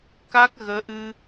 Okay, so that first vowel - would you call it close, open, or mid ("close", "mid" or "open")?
open